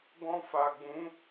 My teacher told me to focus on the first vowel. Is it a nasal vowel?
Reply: yes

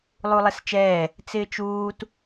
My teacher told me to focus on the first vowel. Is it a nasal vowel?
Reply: no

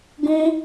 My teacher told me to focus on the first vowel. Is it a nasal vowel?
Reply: yes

